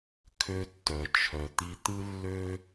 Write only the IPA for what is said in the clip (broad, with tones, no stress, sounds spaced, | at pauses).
kʰ ø˧ tː œ˩ t͡ʃʰ œ˩ t̪ i˧ t̪ ɯ˥ lː ø˥